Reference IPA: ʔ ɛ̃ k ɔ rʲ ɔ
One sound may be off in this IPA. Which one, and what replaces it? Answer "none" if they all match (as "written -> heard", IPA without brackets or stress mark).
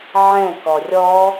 ʔ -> ʕ